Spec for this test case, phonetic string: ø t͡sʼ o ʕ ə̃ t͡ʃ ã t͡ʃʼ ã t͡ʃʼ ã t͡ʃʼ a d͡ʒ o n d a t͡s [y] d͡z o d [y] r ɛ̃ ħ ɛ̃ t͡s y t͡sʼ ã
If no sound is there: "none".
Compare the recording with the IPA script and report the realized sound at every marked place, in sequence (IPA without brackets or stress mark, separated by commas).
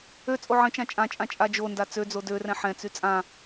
ø, ø